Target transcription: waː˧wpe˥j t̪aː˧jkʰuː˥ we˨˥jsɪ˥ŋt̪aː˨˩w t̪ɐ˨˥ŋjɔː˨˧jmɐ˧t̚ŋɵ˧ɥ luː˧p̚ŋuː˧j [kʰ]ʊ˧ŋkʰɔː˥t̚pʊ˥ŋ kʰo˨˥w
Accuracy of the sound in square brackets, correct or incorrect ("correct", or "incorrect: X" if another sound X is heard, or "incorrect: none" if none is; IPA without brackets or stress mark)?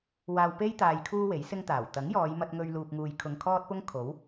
correct